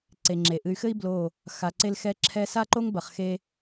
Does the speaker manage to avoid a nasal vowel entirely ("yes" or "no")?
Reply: yes